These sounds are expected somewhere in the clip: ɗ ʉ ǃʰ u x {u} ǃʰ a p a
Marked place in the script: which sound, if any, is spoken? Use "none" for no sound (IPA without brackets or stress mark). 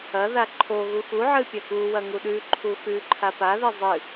ʉ